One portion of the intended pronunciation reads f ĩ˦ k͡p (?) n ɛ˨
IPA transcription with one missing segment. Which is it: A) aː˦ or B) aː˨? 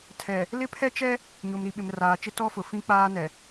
A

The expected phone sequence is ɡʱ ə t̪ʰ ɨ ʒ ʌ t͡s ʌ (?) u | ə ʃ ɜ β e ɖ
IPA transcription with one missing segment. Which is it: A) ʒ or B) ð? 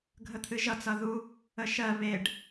B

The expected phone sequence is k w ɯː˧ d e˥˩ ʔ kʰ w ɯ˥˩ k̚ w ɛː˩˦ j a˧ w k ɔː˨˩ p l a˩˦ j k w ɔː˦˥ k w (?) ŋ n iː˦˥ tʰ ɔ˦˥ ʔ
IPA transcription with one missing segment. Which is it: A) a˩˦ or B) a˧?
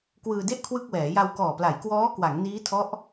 A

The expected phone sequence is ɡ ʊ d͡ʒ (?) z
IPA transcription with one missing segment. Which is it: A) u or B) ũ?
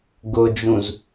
B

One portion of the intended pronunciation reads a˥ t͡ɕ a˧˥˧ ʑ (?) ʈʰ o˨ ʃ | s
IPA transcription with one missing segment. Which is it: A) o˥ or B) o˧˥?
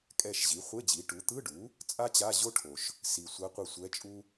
A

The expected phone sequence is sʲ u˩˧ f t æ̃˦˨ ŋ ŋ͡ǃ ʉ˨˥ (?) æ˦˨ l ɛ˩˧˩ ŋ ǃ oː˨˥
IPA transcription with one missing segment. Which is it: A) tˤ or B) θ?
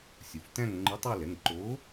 A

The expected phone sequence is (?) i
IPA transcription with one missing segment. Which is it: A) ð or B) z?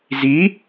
B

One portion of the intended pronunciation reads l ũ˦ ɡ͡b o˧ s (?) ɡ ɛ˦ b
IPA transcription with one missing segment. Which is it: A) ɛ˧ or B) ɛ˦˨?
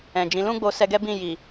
A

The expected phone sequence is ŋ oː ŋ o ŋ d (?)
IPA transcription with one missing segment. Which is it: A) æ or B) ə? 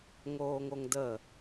B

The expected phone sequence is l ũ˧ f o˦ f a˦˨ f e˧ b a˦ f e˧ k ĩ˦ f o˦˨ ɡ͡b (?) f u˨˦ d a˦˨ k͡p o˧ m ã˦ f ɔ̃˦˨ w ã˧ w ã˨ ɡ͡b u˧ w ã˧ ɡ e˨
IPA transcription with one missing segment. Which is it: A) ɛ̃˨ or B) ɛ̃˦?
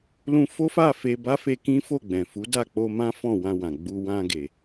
A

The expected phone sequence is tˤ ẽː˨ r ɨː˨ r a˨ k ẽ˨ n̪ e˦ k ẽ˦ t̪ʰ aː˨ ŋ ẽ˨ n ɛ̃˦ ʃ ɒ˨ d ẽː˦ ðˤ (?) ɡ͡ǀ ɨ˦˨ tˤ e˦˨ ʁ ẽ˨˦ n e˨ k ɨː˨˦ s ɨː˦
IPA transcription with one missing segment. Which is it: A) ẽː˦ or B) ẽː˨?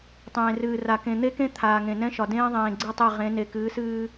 B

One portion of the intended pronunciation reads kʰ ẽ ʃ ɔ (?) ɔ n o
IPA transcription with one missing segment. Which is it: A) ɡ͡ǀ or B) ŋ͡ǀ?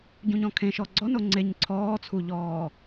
A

